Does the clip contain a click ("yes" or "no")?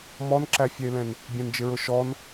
yes